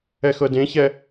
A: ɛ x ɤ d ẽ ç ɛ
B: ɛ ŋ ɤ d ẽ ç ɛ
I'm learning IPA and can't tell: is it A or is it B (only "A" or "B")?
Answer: A